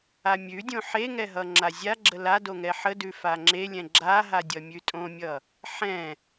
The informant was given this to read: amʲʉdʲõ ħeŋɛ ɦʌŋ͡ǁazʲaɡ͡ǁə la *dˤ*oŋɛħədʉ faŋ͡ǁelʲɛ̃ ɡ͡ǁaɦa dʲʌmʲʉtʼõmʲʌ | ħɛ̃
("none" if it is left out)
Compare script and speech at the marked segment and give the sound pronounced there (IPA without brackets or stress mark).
d